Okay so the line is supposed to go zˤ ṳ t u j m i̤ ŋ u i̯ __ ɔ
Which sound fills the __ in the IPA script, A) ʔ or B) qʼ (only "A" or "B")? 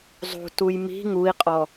B